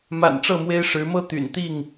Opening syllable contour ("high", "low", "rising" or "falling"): low